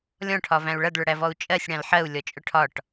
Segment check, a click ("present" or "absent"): absent